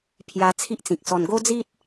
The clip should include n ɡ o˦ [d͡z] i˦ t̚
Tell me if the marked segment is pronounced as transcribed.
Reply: yes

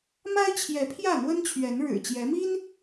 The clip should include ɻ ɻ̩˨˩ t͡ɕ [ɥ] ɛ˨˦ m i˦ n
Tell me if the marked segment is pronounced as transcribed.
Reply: no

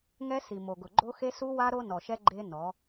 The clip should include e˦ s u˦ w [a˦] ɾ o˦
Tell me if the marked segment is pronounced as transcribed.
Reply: yes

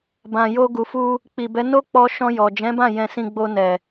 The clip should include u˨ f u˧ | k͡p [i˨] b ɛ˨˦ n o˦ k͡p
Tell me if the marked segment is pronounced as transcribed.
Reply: yes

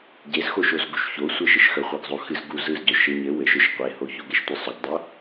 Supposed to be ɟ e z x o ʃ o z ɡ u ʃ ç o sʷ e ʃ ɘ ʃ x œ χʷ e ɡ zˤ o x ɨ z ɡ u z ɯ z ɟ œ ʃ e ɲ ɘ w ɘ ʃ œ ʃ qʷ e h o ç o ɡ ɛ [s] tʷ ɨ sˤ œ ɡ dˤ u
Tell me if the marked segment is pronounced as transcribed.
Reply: no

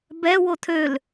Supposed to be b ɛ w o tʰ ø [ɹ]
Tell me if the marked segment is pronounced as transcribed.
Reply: no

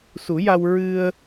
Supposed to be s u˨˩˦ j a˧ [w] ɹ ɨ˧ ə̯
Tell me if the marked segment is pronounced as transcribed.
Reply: yes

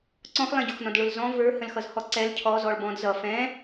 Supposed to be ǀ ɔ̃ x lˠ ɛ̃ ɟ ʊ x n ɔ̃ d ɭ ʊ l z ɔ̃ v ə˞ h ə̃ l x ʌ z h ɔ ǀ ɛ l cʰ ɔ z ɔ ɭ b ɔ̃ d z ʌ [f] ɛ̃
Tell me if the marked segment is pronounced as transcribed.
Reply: yes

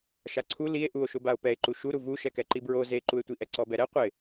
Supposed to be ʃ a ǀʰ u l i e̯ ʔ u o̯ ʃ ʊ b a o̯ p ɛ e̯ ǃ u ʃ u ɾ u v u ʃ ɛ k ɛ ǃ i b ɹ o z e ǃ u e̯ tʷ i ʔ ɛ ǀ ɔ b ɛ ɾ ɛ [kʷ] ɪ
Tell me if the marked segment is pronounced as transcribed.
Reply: no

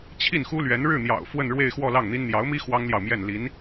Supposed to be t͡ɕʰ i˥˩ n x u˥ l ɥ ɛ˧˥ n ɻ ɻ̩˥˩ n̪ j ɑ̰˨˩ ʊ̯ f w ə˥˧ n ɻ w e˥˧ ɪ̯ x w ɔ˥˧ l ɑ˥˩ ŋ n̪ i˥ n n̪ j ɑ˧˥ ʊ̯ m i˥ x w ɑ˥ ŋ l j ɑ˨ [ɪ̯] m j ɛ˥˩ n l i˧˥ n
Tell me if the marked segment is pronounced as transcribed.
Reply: no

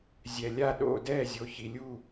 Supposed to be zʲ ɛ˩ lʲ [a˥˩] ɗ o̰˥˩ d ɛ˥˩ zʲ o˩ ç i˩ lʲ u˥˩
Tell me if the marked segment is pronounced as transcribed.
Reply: yes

